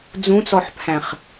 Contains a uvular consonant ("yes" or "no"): yes